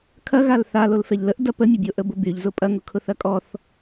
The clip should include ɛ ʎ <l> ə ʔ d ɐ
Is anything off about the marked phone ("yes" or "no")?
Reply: no